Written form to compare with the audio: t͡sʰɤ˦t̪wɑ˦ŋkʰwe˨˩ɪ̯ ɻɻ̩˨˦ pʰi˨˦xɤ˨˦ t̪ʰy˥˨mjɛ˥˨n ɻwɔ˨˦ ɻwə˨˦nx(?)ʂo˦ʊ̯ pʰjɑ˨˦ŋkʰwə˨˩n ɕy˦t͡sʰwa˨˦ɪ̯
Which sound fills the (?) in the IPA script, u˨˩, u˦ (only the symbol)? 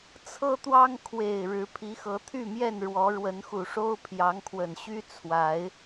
u˨˩